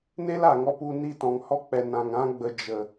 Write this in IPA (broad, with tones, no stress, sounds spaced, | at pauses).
n e˦ l a˨ ŋ ɔ˧ p u˧ n i˦˨ t ɔ̃˨ ŋ h ɔ˦ k͡p ɛ˨ n ã˨ ŋ ã˦ ɡ͡b ə˧ d͡ʒ ə˨